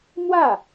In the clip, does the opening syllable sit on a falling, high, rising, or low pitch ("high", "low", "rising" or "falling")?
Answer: falling